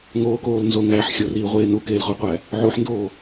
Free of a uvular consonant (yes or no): no